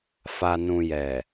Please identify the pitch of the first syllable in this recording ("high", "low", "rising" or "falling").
low